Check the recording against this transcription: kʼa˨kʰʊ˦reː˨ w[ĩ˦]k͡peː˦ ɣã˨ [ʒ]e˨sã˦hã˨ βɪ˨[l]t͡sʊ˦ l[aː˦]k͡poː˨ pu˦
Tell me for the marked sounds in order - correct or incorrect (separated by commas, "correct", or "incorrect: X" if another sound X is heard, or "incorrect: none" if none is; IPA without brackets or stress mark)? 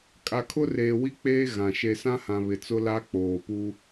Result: incorrect: i˦, incorrect: ʃ, incorrect: none, incorrect: a˦